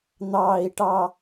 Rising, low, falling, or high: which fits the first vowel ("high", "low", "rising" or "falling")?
low